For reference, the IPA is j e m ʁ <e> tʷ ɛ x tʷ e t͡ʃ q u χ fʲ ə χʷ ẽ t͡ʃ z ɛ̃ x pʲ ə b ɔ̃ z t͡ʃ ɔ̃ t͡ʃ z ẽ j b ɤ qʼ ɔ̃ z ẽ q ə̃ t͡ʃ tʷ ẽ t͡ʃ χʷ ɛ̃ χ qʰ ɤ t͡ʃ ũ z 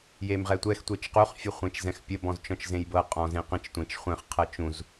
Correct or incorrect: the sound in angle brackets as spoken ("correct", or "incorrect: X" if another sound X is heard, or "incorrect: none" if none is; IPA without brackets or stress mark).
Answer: incorrect: ɛ